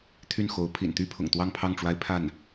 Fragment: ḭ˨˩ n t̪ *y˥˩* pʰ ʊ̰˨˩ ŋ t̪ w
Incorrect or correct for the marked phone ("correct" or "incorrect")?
incorrect